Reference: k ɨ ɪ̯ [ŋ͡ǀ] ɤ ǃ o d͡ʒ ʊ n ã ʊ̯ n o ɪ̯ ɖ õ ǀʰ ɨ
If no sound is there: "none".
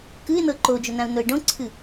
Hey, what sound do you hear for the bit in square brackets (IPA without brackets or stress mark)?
n̪